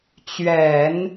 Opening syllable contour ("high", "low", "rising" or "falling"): low